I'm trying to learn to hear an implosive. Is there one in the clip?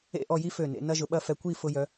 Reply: yes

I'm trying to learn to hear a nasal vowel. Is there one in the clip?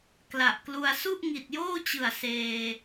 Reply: no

